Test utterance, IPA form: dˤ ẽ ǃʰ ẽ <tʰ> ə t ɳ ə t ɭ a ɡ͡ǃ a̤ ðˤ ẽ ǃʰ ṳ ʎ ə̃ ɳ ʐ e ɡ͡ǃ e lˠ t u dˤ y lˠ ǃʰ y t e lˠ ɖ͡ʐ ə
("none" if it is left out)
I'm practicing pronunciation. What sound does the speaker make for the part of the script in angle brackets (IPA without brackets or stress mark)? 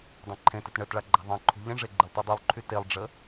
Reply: t